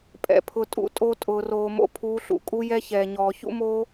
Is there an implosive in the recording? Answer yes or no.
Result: no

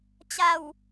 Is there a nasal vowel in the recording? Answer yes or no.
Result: no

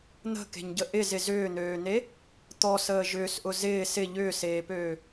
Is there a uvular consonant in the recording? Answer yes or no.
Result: no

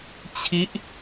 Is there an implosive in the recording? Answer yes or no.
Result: no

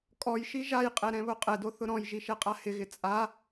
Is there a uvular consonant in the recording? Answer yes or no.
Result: yes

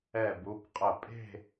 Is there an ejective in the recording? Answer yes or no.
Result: yes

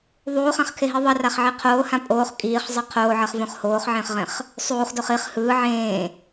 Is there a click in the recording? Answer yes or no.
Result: no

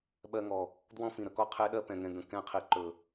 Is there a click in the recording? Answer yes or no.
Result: yes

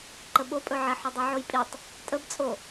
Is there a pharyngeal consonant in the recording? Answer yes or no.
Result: yes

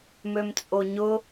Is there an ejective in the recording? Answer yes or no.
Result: yes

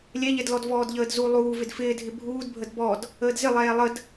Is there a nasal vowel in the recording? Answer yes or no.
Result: no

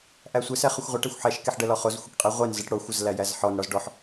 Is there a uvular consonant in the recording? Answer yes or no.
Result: yes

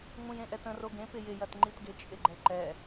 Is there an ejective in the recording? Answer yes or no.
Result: yes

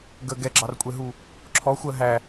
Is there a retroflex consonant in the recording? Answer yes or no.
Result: no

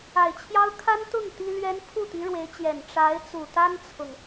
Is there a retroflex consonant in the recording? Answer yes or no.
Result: yes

